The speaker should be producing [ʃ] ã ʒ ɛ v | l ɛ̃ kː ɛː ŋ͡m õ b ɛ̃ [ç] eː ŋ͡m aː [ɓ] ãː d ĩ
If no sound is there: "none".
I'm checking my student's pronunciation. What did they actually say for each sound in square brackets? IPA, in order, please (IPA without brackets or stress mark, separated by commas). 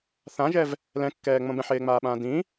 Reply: θ, ħ, ɓ